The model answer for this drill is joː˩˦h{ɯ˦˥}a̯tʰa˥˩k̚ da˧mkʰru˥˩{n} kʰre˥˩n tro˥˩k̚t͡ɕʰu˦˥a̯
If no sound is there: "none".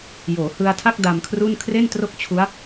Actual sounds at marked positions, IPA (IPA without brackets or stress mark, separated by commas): ɯ˧, n